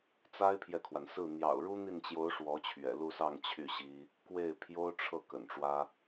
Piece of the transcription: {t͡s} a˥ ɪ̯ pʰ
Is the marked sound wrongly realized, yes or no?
no